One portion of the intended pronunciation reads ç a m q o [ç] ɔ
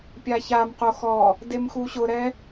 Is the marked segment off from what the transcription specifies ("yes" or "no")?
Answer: yes